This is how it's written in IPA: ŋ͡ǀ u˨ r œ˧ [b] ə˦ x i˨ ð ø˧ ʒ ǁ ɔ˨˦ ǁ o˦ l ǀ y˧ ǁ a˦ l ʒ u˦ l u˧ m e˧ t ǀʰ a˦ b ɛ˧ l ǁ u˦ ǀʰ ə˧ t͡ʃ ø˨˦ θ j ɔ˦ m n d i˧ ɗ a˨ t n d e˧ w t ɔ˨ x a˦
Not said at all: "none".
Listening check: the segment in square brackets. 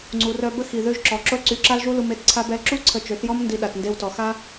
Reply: b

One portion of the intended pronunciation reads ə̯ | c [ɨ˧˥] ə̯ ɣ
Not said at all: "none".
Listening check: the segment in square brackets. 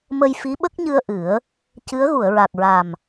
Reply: ɨ˧˥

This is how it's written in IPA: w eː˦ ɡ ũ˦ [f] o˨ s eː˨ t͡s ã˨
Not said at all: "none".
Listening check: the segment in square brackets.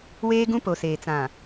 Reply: p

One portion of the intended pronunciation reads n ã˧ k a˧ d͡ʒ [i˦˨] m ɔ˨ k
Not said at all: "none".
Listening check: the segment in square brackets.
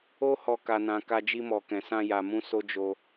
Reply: i˧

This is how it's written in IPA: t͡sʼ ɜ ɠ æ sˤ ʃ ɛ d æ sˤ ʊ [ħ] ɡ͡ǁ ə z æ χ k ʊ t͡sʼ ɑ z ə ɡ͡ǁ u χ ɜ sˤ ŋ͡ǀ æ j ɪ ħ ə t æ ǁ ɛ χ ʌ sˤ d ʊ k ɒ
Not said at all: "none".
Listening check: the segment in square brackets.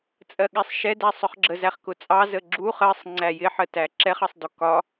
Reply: χ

